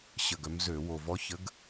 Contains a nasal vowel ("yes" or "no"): no